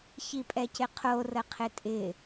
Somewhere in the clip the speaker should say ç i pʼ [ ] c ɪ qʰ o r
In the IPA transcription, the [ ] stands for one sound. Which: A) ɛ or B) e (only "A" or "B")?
A